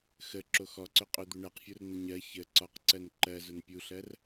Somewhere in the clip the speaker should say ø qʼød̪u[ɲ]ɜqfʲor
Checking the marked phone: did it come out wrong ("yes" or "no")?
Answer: yes